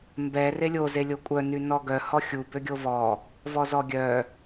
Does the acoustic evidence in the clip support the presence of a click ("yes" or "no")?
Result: no